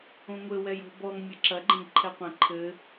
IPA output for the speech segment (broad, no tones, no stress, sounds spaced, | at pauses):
õ ŋʷ ɘ w ɛ j o̤ b ɔ ŋ mʲ ɘ ǁ ɐ ɡ͡ǃ ɛ̃ ɡ ǃʰ ɛ qʷ ɛ̃ ǃʰ ɘ